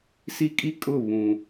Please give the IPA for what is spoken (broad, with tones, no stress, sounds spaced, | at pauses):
s i˦ kʼ i˦˨ kʼ ʊ˦˨ β ũ˨